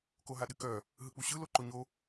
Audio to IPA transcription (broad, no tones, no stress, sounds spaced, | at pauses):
k o ɦ a ɗ ɨ k œ | ɦ ɯ k͡p u ɕ ɯ l o ǃ o ɲ o